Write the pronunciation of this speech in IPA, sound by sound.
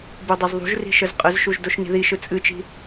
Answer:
b u dˤ o z ðˤ ṳ ʒ r i̤ ʃ ə z qʼ ə z ʃ u ʒ d o ʃ n i̤ ð i ʃ ɯ t͡sʼ ɨ t͡ʃ i̤

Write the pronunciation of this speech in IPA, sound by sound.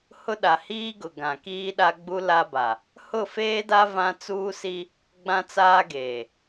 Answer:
h ʊ˦ ɗ a˨ h iː˦ ɡ ʊ˨ ɡ ã˨ k iː˦ ɗ a˦ ɡ͡b u˦ l a˦ b a˨ | h ʊ˦˨ f eː˦ d a˦ v ã˦ t͡s uː˦ s i˦ | ɡ͡b ã˦ t͡s aː˦ ɡ eː˨

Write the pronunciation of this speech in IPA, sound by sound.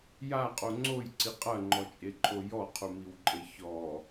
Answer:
j a qʼ o ŋ͡ǀ o j ǀ i qʼ ɐ ŋ͡ǃ ɔ t͡ʃʼ e ǃʰ o j ɔ qʰ u m i w ǃʼ e ç ɔ

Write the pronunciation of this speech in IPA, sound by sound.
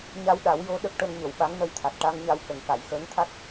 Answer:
ɲ a˧ w ɗ a˨˩˦ w j o˧˥ ɗ ə˦˥ k̚ ʈ ə˧ ŋ ɲ ə˨˩˨ w ɓ a˧˥ ŋ n ə˧ j t̪ʰ a˨˩ t̚ ʈ a˧ ŋ ɲ a˧ w k ə˨˩ ŋ k a˨˩˨ j x əː˧˥ ŋ t̪ʰ a˦˥ t̚

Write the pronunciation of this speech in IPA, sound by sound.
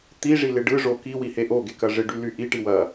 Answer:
t̪ i ʐ i l ɪ ɖ ɯ ʐ o k i w i h e ʔ o ɡ e k ɐ ʐ ɪ ɖ y l y ʔ i ʈ i w ɐ

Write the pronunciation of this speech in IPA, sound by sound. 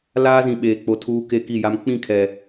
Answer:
l aː˦ z ĩ˨ ɓ eː˨ k͡p o˨ tʰ uː˦ k e˦ k i˦˨ j a˦ m k͡p ĩ˦˨ kʰ ɛ˨

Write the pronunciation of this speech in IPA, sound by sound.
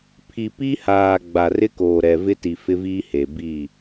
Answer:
pʰ i˨ p i˦ h aː˨ ɡ͡b a˨ r ɪ˦ k oː˨ ɾ ɛ˨ v ɪ˦ t i˨ f ɪ˦ v iː˦ h e˨ b i˦˨

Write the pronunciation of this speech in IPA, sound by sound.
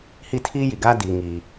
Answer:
h i˦˨ tʰ iː˦ j i˨ ɡ aː˦ d iː˨ ŋ i˨

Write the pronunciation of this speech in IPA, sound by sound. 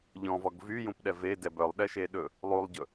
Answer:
ʎ ɔ̃ v ɔ ɡ v y j ũ p ɗ ɛ v e d ɛ b œ lˠ ɗ ɛ ʃ e ɗ ɵ | lˠ u lˠ ɟ ɵ

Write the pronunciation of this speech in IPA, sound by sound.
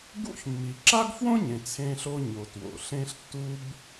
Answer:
ɡ ṵ˥ ç mː i˩ ǁ a˥ ɡ f w õ˥ ɲ ẽ˩ t͡sʰ ẽ˧ ɬ o˧ ɲ o˩ t w o̰˩ ɬ ẽ˧ ɬ tː u˧ b

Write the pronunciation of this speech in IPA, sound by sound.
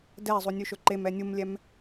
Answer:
d ɛ zˤ u nʲ ʉ ʃ ɵ ǃ e m ɛ nʲ u m lʲ ɛ m

